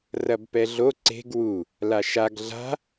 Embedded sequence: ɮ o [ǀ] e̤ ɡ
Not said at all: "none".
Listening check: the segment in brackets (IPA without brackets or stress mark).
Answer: ǀ